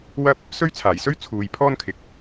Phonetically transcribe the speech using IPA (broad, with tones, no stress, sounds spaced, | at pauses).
w ɐ˥ p̚ | s ɵ˥ ɥ t͡sʰ aː˨˩ j s ɵ˥ ɥ t͡sʰ uː˨ j pʰ ɔː˥ n kʰ ɪ˨˥ k̚